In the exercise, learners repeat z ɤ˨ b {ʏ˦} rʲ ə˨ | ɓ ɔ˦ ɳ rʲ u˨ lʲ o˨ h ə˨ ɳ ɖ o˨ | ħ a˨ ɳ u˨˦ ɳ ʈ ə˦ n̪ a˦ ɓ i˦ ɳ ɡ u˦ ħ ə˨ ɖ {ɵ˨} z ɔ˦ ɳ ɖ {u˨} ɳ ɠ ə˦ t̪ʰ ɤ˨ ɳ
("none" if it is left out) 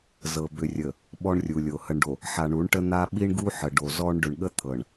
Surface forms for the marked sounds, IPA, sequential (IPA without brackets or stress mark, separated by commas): ʏ˨, o˨, ʏ˨